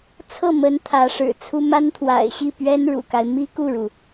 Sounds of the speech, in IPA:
t͡sʰ ɤ˥˩ m ə˧˥ n t̪ʰ ä˧˥ ʂ ɻ̩˨˩ t͡sʰ u˥ m a˥ n t̪ʰ w a̰˨˩ ɪ̯ ɕ i˥˩ p ɥ ɛ˥ n ɻ ṵ˨˩ k a˦ ɪ̯ m i˥ k u˥˩ ɻ u˩

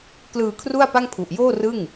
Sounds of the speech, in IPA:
k l ɯː˧ kʰ r u˥˩ a̯ p a˥˩ ŋ pʰ u˨˩ ʔ j oː˥˩ r ɯ˥˩ ŋ

